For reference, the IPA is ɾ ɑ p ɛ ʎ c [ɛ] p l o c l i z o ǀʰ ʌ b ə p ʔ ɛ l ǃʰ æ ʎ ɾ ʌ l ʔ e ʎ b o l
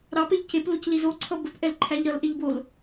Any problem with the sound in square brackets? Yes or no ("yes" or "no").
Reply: yes